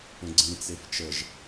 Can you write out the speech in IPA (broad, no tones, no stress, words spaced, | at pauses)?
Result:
ə̃ɡ͡ǀĩt͡sef t͡ʃəʒ